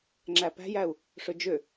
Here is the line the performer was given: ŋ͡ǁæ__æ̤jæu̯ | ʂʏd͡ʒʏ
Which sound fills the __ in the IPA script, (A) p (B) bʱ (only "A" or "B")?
A